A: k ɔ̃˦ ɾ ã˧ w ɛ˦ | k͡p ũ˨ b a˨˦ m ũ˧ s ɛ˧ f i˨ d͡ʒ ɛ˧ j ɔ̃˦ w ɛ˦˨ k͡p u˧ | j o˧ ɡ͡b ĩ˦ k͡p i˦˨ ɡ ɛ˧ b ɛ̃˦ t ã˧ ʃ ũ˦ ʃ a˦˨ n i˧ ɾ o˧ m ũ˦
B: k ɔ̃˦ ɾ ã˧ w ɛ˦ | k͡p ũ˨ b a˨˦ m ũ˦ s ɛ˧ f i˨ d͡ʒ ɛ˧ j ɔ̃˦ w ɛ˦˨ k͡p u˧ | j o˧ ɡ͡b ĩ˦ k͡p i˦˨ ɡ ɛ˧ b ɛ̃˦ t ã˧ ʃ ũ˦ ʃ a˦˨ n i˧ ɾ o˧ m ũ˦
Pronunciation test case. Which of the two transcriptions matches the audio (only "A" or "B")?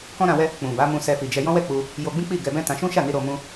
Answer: A